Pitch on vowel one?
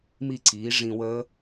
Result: falling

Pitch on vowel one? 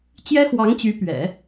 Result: high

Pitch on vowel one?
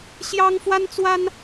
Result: high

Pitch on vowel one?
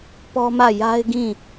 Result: high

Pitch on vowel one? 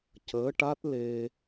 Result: rising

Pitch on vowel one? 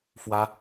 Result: high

